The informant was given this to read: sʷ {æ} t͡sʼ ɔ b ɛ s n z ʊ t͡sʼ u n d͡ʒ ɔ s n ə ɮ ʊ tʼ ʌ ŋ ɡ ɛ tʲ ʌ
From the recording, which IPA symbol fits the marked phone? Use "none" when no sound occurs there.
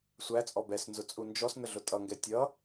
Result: æ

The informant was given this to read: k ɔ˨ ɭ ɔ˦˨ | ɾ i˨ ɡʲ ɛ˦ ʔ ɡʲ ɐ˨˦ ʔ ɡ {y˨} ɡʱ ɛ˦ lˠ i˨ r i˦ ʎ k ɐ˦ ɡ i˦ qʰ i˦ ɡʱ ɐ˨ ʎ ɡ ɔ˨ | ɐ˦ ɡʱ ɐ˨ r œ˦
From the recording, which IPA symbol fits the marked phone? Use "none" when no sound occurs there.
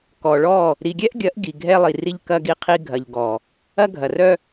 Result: i˨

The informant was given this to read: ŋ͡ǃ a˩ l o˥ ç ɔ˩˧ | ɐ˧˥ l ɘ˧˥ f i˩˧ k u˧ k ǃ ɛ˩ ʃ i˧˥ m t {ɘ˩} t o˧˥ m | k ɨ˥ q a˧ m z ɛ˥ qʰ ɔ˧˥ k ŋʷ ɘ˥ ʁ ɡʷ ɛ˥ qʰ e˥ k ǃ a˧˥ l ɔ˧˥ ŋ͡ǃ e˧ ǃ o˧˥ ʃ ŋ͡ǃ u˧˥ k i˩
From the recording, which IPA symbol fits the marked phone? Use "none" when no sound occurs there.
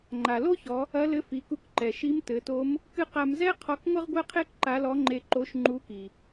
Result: ɘ˩˧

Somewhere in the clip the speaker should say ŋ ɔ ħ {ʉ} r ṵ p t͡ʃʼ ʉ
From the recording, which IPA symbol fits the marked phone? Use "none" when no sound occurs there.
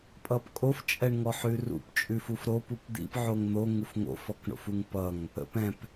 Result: ʉ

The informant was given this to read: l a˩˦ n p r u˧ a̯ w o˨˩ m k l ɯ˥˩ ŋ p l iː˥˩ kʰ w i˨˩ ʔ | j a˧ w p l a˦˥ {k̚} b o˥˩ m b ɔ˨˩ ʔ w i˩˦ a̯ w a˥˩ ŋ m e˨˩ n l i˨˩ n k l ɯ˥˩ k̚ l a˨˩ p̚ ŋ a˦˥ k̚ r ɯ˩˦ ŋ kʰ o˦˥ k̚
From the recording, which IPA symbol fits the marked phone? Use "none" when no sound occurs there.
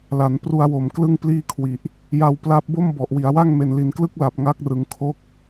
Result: p̚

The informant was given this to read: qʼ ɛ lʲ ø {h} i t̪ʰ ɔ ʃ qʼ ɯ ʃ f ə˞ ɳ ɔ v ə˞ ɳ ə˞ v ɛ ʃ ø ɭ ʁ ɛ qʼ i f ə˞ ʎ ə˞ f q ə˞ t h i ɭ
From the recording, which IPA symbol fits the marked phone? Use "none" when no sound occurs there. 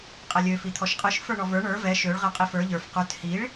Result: f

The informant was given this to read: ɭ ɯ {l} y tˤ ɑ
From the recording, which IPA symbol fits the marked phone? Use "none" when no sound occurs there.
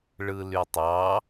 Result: l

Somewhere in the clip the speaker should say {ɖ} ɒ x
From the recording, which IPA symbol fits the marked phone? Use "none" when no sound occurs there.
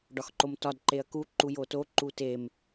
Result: ɖ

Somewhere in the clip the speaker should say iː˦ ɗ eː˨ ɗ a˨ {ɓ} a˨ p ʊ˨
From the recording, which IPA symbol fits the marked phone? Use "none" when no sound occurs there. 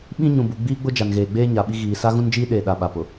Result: ɓ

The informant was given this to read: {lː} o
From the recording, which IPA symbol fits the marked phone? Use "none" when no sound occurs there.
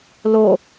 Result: l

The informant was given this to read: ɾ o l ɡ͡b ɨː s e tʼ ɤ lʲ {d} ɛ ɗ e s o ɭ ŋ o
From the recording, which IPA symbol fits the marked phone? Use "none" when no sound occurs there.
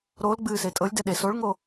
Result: d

